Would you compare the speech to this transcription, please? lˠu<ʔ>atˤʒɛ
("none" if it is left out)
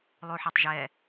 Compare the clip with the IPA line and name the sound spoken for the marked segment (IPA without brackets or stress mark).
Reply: ħ